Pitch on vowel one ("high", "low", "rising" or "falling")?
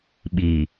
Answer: low